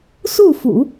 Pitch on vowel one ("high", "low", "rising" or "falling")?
falling